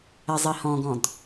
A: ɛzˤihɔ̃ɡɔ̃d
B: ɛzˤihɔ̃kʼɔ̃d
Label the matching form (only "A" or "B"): A